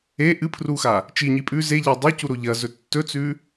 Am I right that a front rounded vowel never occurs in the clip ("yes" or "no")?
yes